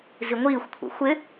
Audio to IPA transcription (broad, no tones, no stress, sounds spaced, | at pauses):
z i ŋʷ iː xʷ kʷʰ ḛ xʷ ɪ